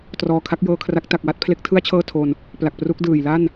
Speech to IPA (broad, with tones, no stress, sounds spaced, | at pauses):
t r ɔː˨˩ kʰ a˦˥ k̚ j ɤː˧ kʰ r a˦˥ k̚ t a˨˩ k̚ w a˦˥ t̚ pʰ l e˦˥ k̚ tʰ ɯ˥˩ a̯ t͡ɕʰ ɤː˥˩ tʰ o˧ n | p l a˨˩ k̚ p r u˦˥ k̚ d ɯː˨˩ j l a˥˩ n